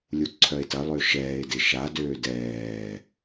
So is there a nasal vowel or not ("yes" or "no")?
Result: no